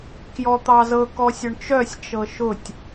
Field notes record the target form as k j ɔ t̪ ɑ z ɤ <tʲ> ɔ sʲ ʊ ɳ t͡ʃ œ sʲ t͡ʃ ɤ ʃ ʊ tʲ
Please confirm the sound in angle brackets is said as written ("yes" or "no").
no